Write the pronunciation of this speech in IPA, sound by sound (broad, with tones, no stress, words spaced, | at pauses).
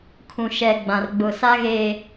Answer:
kʰũ˨ ʃɛ˨ ɡ͡bã˨rɡ͡bʊ˨ sa˦ɣeː˨